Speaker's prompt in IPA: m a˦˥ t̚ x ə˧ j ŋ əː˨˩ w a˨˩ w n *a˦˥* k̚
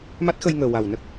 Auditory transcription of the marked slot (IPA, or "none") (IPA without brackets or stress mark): ə˦˥